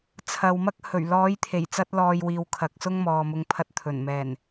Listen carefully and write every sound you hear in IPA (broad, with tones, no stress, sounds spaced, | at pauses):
t͡sʰ ɐ˨ w m ɐ˥ k̚ h ɵ˨˩ ɥ l ɔː˨˥ j t̪ʰ e˨˩ j t͡s ɐ˥ t̚ l ɔː˧ j w iː˨ w kʰ ɐ˨˥ k̚ s ʊ˥ ŋ m ɔː˨ m ʊ˧ ŋ pʰ ɐ˧ t̚ t̪ʰ ɵ˨˩ n m ɛː˨˩ n